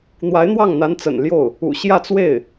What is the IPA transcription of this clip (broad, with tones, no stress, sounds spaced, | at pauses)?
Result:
n̪ w a˧˥ ɪ̯ n̪ w ɑ˥˩ ŋ n̪ a˧˥ n t͡s ə̰˨˩ n l j o˥˩ ʊ̯ | ṵ˨˩ ɕ j ä˥˧ t͡s w e˥˩ ɪ̯